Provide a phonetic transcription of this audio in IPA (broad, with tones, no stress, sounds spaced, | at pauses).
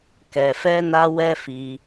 k ɛ˨ f ɛ˧ n a˧ w ɛ˦ f i˧